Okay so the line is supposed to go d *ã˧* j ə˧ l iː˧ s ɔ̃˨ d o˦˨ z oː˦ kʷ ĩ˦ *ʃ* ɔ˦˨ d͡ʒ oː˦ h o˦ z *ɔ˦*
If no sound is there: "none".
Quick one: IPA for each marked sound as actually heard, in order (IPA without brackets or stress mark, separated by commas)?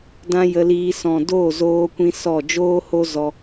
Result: ã˦, s, ɔ˧